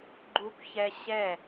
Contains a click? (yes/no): yes